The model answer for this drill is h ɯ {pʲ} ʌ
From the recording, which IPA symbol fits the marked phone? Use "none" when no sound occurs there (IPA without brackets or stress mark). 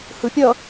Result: pʲ